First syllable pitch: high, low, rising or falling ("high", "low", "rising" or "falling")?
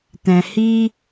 low